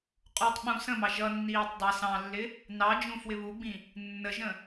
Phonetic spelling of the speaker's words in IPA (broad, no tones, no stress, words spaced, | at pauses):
qʼutˤɓũ sə̃mɑ ʒʌnːiːtˤ dˤʌ sɑ̃lːɪ | nɑ d͡ʒũfwɪβuɡ͡bĩ | nːəʒə̃